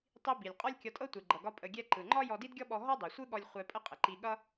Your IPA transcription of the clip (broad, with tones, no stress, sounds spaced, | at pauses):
tˤ i˧ b i˩ lʲ qʼ ɒ˥ lʲ kʲ ɒ˧ tʼ ɤ˥ tʷ e˩ ɡ͡ǃ ʌ˩ ɡ ɒ˧ pʼ ə˧ ɡʲ ɛ˥ ǃ ɯ˩ ŋ͡ǃ ɒ˥ j ɔ˧ d i˥ d ɡʲ ɔ˥ ɓ ɔ˧ ɦ ɔ˥ dˤ e˩ sʷ ɯ˥ ɠ ɔ˧ lʲ χʷ ɛ˧ pʼ ə˥ qʼ ə˩ ǃ i˧ ɠ ʌ˥